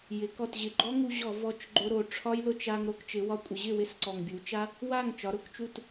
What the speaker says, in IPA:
jɪ˩˧kɔ˨˩tʑɪ˨˩ɡ͡ǃɔ˦˥ ŋu˧ʑɔ˧˩˧ vɔ˨˩t͡ʃ ɡ͡ǃʊ˧ɾo˨˩ ʈ͡ʂʰɒ˦˥j lʊ˧t͡ʃa˧ŋ ɾo˧kt͡ʃɪ˩˧wɒ˧˩˧ kʷʼɪ˩˧ʑɪ˥˨ wɪ˦˥sǀɔ˨˩ŋ bʲu˩˧t͡ʃa˦˥ | wa˥˨ŋ t͡ʃɒ˩˧ɾʊ˧˩˧kt͡ʃu˥˨t

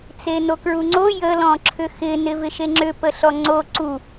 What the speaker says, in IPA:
t͡senokɹuŋ͡ǀo jə lɔ̃ǁʰʏxɪ nɪvɪʃeŋ͡ǁʏ pəɬɔŋ͡ǀo ǀu

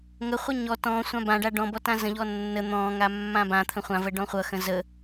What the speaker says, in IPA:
ŋəχʷʌ ɲɔ tɔ̃ sʷãbãɖa ɖɔ̃bɔ tãzə̃ʎɔ nːə n̪ɔ̃ŋa mːãbãt̪ʰə̃ χʷãvə ɖɔ̃χʷʌxə̃ zə

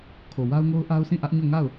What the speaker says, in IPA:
kʰo˨wa˦ʊ̯ŋo˦ʊ̯ ʔa˦ʊ̯sʰĩ˦˨ʔä˦ʔɲo˦˨ ŋa˦˨ʊ̯

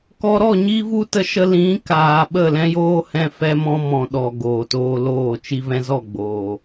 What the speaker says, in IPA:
kɔ˧ ɾɔ˦˨ ɲi˦vu˦tə˧ʃə˧ lĩ˨˦kaː˨ ɓə˦˨lɛ̃˦joː˦hɛ̃˧ fɛ˦mɔ̃˦mɔ̃˨ ɗɔ˨ ɡoː˨toː˧loː˦˨ t͡ʃi˧vɛ̃˧zɔ˦˨ ɡ͡boː˨

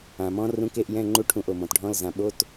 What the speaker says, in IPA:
ã˩mɔ̃˧˥rũ˧˥˧k e˧˥˧ʔ jɛ̃˧˥˧ŋ͡ǃu˧˥˧ʈʰũ˧˩ʔ o˩mɔ̃˩tɖʱɔ̃˧˥˧lzã˧˩ ɓo˧˥˧t

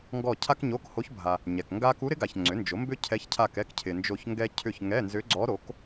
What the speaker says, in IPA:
ŋɡɔ˦˨cʰa˥kɲo˧˥˧kho˧˥ç bʱa˨ | ɲɛ˨kŋɡa˥ ku˧˥ɾɪ˧˥ɡa˨ç ŋ͡ǀʏ˩˥nd͡ʒo˩˥ mbʏ˥cʰɛ˧˥çcʰa˦˨k ɛ˥kcʰɪ˨nd͡ʒo˦˨çŋɡɛ˥ cʰʏ˦˨çŋɛ˧˥˧nzʏ˧˥ɡ͡ǀɔ˧˥ ɾo˩˥k

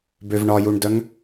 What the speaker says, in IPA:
bøvɳɒjuɳdœŋ

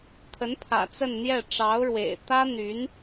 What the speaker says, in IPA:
t̪ʰə˧˥npʰä̰˨˩ t͡sə˥˧nn̪jɛ˥˩ ʈ͡ʂɑ˧˥ʊ̯ɻwḛ˨˩ɪ̯ t̪ä˥n̪y˧˥n

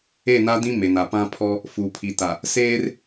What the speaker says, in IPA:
e˦˨na˦dĩ˦ me˨na˨pã˦pʰɔ˦ | fuː˨pʰi˨ta˨ | seː˦r

